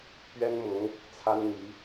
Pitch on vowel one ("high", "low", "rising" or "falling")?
high